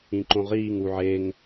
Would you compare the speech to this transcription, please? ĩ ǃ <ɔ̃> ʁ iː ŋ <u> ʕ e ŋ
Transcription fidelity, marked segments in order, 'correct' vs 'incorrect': incorrect: õ, correct

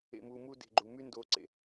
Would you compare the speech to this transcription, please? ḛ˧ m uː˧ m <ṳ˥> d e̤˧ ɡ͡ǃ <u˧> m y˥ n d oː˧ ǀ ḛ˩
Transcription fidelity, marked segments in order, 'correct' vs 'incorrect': incorrect: u˥, correct

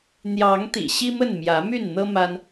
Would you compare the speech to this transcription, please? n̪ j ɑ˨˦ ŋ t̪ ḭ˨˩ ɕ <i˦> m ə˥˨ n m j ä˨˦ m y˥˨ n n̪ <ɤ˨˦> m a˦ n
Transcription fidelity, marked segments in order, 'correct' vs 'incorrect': correct, incorrect: ɤ˦

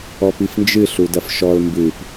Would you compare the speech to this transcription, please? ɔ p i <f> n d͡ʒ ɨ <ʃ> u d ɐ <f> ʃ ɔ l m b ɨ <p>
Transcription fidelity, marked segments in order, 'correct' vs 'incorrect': correct, incorrect: ɬ, correct, correct

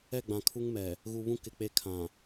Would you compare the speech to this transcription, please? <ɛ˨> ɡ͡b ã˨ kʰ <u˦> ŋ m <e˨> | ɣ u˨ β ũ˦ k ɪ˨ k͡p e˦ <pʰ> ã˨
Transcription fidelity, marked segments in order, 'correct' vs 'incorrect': incorrect: ɛ˦˨, correct, incorrect: ɛ˨, incorrect: kʰ

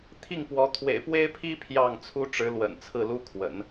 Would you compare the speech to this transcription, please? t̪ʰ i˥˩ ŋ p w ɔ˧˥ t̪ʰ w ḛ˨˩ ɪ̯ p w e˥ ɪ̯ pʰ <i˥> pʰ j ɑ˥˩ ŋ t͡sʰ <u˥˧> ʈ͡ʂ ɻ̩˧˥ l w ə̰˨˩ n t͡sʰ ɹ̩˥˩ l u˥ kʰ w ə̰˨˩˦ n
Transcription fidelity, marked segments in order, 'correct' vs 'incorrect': correct, incorrect: u˥

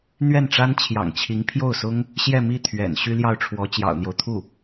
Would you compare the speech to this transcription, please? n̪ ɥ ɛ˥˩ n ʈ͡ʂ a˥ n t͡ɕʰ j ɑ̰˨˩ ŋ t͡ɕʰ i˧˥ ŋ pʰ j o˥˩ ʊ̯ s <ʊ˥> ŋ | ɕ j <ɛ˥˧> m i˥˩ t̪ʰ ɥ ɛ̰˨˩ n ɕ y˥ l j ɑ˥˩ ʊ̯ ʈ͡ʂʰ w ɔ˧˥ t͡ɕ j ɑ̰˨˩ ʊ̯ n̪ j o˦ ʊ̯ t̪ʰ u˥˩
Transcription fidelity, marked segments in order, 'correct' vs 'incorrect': correct, correct

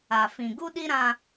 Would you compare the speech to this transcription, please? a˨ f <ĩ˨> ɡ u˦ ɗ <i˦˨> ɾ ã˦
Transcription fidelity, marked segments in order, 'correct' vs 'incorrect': correct, incorrect: i˦

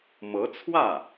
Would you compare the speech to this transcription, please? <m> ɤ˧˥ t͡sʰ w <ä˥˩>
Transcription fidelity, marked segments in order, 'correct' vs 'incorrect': correct, correct

